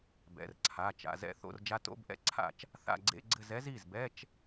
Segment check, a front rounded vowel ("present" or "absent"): absent